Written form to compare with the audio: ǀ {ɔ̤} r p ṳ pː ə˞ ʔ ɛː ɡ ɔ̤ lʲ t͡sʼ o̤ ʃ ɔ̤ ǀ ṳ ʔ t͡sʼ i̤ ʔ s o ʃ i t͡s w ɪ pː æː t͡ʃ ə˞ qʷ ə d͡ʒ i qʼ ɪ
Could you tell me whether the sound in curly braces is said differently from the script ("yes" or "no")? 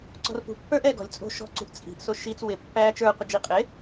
no